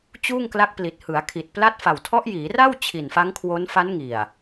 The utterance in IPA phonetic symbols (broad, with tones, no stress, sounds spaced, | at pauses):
t͡ɕ uː˥˩ ŋ k l a˦˥ k̚ p l i˨˩ t̚ h ɯ˩˦ a̯ kʰ i˨˩ t̚ p l a˥˩ t̚ f a˨˩ w tʰ ɔ˦˥ ʔ j iː˩˦ r a˥˩ w t͡ɕʰ i˨˩ n f a˦˥ ŋ kʰ w o˦˥ n f a˦˥ n ŋ i˨˩ a̯